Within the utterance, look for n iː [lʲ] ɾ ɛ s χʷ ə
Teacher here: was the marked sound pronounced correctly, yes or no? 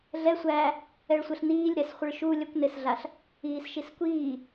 yes